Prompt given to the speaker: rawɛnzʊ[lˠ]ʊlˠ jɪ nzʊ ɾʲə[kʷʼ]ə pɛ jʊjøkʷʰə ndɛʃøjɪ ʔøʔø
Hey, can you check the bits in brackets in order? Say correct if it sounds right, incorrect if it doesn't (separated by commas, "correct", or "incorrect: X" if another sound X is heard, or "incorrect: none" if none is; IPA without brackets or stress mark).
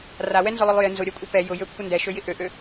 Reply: correct, correct